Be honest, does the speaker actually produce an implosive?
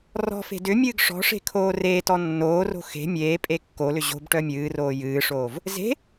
no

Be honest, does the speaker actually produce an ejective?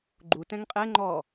yes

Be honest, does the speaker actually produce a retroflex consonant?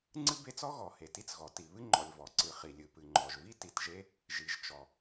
no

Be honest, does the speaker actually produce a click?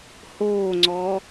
yes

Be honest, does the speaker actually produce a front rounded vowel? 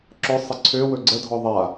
yes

